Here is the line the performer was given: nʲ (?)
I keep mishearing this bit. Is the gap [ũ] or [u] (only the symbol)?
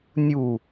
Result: u